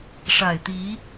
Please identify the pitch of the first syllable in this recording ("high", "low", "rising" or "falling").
low